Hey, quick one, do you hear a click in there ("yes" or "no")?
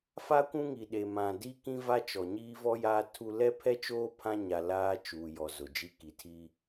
no